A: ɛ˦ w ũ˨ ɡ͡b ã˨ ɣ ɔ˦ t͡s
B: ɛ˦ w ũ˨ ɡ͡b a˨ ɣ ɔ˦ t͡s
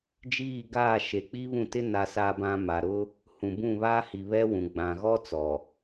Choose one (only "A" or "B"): A